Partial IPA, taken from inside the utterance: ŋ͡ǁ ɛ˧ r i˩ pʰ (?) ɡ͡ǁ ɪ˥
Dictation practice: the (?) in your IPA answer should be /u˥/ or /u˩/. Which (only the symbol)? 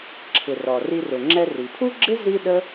u˥